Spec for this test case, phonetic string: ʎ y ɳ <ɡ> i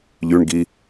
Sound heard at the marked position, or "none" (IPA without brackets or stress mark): ɡ